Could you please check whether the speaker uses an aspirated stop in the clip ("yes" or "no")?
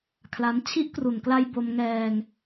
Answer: yes